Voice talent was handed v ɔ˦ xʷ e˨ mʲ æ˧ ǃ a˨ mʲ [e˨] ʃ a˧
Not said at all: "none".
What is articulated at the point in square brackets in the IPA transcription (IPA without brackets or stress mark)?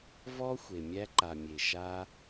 e˨